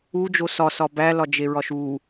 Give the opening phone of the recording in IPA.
u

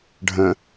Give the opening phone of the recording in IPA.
ɖʱ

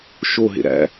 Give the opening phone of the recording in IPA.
ʃ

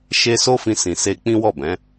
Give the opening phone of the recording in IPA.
ʃ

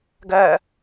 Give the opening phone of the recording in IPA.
ɡ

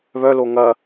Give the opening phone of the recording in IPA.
β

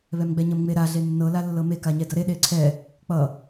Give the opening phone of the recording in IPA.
β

